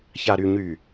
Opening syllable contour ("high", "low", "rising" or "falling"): low